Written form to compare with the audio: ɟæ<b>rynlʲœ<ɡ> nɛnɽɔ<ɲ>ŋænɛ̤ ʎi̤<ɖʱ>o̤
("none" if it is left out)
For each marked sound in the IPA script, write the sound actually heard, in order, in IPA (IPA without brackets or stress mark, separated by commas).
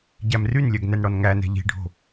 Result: m, ɡ, n, ɖʱ